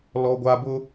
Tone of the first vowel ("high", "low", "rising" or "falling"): high